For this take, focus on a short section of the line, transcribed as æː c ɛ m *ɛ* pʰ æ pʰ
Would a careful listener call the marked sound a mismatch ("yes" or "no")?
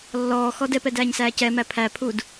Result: yes